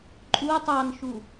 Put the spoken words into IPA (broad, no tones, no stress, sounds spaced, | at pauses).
ǃʼ u tˤ ɑ n ʃ u